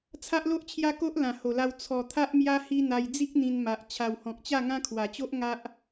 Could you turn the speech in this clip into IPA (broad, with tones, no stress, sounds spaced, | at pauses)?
t͡sʰ a˦ ʔ l o˦ ʔ t͡ɕʰ j a˦ k o˦ ʔ l ã˨˩ h o˨˩ l a˧ w t͡sʰ ɔ˨˩ t̪ʰ a˦ ʔ m j a˦ h i˦ n̪ a˧ j d͡z i˦ k̚ n̪ ĩ˧ n m a˨ ʔ t͡ɕʰ a˨˩ w h ɔ̃˨ k̚ t͡ɕ a˥˧ ŋ ã˦ kʰ w a˨˩ t͡ɕ o˦ ʔ ŋ a˦ ʔ